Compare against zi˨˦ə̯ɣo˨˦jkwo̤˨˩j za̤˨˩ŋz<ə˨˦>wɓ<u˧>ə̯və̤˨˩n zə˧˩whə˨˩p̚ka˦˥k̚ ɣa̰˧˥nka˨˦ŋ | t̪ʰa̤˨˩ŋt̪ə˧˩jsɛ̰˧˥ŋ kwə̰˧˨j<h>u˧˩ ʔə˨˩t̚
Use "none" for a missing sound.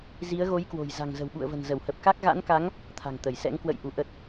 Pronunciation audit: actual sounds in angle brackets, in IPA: ə̤˨˩, ṵ˧˨, ʔ

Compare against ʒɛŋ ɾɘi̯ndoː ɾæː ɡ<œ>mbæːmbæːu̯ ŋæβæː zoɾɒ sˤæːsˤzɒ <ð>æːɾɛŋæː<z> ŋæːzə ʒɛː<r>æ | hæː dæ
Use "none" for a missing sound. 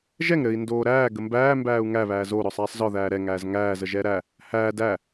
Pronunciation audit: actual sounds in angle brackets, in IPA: ə, ð, z, ɾ

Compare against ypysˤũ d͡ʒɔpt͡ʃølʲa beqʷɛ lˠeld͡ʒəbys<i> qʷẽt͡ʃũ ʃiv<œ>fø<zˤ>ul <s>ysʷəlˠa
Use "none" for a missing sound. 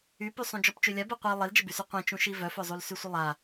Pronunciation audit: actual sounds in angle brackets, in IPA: y, œ, zˤ, s

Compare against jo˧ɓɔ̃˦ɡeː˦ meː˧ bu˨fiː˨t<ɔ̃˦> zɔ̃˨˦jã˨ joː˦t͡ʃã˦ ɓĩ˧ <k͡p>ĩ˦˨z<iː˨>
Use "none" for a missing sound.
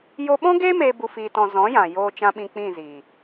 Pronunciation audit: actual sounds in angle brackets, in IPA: ɔ̃˨, k͡p, iː˨

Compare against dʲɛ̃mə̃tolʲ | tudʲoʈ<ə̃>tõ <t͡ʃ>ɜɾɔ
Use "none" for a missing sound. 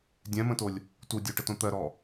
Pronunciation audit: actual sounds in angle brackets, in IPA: ə, t̪

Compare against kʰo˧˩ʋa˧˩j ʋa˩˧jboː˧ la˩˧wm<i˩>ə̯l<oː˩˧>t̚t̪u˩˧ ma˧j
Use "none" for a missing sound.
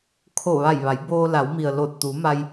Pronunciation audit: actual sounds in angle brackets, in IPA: i˩, oː˧˩

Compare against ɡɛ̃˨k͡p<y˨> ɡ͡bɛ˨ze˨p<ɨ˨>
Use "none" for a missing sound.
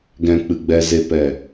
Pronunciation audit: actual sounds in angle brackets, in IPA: ɨ˨, ɛ˨

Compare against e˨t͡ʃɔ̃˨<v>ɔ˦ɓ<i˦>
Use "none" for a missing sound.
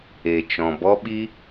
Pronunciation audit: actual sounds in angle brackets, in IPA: b, i˦

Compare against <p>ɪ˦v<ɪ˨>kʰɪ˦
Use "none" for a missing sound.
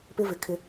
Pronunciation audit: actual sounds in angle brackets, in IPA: p, ɪ˨

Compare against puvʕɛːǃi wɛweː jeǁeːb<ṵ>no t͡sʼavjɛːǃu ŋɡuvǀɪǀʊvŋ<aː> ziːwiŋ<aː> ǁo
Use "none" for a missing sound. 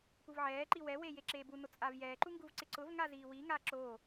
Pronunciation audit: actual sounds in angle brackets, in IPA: u, a, aː

